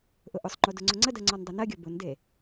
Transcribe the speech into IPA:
ʔʊʔʊsˤŋ͡ǃo dʊŋ͡ǀʊŋ͡ǀədɜ ŋ͡ǀɔndˤɛnɜɡʲɔ bʊnde

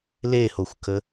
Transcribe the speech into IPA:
lehoxʷkə

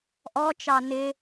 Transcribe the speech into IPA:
ʔɔt͡ʃɑ nɪ

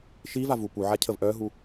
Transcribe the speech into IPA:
ʃivavu puʕacʰəv ʔœɦu

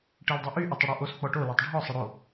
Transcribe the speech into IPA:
ʈeldˤyʔy ʔetˤəɽɔʔos k͡pɔʈo lɔtˤɖʱɔ sˤəɽo

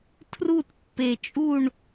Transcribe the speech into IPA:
tʰru˦˨tpːe˨˩ t͡ʃʼu˦˨ɳ

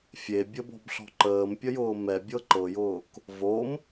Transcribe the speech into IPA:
fʲebʲəbɔ̤bɬɔ̤ ǃəːmpʲəjʊː mɛbʲɤ ǃɤjʊːk | vom

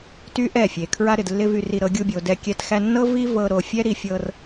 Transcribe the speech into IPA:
ty˦ʔɛ˦˨fʲe˨ kʰɹa˧ɾɪ˨dlːɪ˧ vy˧ri˧ ɾɤ˧ɡʲu˧bʲo˨ dɛ˧ kʲɛ˧t xæ˧nːɤ˦ vi˦ vɤ˧ ɾo˧fʲɛ˦ɾi˧ fʲɤ˧r

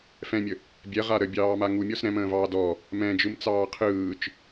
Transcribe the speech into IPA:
fɛ̃mʲə | bʲɛʁa ɾəbʲɑːma ŋumʲɔs ɾɛ̃mə̃ːvɑː dɔ | mɛ̃d͡ʒɯmt͡sɑː qʰɯːt͡ʃ

